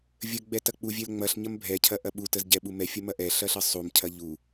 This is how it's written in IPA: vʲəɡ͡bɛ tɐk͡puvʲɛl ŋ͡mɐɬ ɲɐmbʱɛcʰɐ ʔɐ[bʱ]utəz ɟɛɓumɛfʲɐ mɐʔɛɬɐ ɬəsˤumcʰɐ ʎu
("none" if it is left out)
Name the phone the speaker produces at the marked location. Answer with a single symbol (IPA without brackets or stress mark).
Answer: ɓ